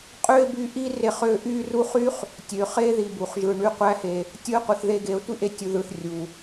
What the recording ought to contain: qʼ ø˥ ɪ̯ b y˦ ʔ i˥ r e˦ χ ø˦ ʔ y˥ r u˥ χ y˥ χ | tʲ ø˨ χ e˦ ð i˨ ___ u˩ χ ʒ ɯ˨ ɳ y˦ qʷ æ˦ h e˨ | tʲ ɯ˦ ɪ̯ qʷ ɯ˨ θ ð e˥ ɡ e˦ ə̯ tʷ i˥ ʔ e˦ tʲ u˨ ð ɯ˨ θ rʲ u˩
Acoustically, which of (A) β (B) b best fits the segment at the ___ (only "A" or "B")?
B